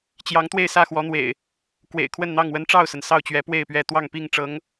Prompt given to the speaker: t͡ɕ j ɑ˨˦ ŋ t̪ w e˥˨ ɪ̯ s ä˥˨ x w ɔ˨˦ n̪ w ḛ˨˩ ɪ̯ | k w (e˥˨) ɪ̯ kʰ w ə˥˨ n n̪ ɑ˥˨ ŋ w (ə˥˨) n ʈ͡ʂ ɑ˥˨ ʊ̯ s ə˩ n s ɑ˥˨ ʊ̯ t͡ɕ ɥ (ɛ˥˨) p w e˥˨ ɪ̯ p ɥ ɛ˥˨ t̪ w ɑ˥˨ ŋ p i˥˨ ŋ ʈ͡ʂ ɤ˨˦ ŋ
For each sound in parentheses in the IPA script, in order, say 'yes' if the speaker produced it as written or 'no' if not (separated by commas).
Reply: no, no, no